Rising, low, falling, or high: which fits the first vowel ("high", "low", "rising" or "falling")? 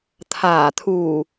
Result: low